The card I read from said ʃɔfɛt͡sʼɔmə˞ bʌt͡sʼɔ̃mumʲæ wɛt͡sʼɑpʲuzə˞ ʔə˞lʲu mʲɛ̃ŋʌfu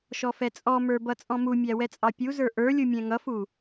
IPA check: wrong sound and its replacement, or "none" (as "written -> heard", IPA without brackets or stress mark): none